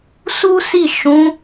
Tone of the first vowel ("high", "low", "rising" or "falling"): high